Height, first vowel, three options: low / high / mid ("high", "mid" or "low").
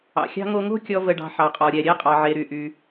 low